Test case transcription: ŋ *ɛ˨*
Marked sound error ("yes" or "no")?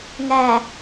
no